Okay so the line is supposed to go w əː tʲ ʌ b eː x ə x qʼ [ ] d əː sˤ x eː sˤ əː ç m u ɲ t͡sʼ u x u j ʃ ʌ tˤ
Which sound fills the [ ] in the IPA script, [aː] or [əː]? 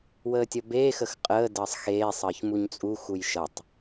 əː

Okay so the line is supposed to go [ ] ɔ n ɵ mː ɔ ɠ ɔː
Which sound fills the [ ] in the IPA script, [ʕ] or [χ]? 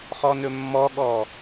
χ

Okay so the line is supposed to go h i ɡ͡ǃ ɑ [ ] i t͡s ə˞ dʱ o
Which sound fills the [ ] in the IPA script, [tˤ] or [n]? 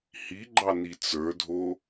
n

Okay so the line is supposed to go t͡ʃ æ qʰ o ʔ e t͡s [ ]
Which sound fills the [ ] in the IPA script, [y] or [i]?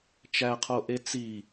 i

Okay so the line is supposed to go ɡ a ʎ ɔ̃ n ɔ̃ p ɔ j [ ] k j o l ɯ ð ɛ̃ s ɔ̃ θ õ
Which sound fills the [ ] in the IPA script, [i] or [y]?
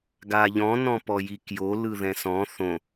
i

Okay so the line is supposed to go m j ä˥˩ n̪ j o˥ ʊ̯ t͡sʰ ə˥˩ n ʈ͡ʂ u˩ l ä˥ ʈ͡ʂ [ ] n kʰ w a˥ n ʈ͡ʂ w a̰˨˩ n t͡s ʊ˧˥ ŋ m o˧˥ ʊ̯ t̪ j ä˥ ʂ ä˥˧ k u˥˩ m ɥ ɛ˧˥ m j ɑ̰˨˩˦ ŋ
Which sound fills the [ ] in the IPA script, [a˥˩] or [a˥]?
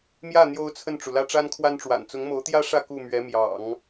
a˥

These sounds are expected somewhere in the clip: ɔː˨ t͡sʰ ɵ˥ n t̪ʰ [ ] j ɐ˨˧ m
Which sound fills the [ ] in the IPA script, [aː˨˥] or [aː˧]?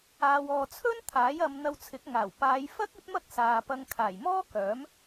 aː˨˥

